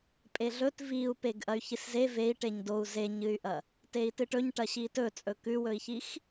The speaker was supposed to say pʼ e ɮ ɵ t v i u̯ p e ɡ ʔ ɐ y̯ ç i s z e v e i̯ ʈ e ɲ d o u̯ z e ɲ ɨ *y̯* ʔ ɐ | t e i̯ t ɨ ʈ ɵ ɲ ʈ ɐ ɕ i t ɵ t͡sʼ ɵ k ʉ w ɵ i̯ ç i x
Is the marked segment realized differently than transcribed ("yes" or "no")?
no